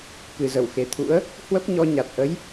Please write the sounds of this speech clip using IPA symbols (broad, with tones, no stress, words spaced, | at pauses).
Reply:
kɨ˨˩zə˧˩wxe˨˩t̪ʰṵ˧˥ə̯ | hwə˦˥p̚ɲɔ˧ ɲa˨˩t̚ʔə˨˦j